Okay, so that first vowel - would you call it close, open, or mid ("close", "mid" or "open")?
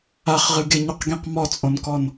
open